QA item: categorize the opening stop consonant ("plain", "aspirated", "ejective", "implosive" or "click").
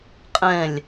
ejective